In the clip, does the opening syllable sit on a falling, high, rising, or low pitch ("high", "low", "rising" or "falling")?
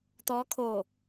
rising